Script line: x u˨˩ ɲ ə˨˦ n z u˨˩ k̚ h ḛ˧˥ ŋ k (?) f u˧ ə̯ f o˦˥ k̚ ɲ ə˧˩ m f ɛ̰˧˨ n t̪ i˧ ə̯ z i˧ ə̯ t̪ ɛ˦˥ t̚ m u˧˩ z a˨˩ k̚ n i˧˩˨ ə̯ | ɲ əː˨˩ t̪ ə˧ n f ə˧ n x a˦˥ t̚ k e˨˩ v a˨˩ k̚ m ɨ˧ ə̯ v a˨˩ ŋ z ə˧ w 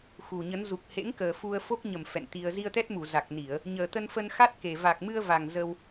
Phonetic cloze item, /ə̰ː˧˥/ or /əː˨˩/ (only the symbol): əː˨˩